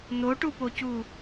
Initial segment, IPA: n̪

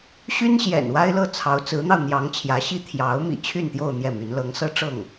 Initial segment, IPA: ɕ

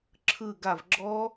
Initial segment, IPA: ǁʰ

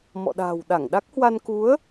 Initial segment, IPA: m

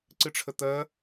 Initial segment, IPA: ǀ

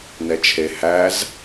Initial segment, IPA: n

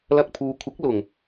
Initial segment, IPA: l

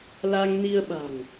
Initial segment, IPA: l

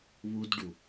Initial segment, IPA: β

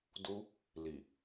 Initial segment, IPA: d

